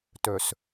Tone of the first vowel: low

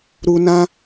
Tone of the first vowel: low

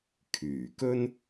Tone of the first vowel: low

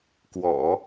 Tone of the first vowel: low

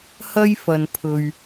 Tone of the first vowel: high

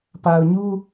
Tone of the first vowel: low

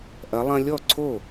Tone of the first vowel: rising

